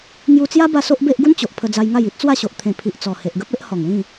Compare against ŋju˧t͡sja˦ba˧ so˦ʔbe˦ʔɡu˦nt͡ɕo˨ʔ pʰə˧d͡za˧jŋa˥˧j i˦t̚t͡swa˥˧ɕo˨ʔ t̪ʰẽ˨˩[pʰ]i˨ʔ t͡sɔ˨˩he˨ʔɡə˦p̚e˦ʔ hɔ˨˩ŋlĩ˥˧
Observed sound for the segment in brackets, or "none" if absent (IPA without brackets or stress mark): pʰ